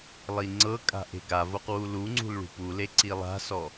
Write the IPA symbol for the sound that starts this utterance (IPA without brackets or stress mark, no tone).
lˠ